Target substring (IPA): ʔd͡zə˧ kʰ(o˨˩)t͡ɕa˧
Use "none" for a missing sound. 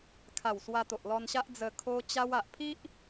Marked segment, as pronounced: o˧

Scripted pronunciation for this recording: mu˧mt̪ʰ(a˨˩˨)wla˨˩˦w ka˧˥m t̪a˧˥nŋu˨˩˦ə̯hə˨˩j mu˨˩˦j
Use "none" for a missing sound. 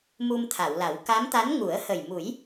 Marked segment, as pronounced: a˨˩˨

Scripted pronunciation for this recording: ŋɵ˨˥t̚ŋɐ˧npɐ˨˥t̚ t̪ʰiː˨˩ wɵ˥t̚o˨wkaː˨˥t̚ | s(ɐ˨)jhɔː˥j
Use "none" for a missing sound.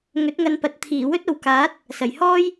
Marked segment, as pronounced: ɐ˨˩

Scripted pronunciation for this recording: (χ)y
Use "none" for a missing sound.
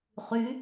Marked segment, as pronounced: χ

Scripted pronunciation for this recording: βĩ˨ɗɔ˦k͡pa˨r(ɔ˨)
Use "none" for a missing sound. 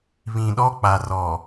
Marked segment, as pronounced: ɔ˨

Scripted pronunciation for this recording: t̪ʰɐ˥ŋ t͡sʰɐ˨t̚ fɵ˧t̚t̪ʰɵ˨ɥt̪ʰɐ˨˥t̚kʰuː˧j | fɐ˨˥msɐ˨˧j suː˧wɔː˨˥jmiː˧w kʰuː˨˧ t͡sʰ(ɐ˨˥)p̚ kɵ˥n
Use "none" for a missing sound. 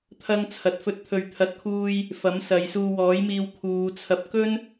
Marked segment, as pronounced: ɐ˧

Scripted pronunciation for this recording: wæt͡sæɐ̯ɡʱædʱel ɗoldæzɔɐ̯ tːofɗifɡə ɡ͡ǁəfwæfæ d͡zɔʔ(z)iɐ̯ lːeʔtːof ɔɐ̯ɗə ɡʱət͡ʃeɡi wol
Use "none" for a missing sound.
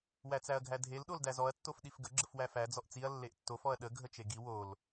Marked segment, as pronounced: t͡s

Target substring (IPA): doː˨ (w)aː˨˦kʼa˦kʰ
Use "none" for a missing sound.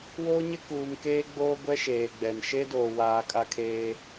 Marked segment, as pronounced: w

